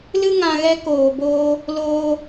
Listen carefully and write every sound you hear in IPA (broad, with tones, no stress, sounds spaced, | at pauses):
l ɨ˦ ŋ ã˧ ɣ ɛ˦ k oː˨ b oː˦ | l oː˧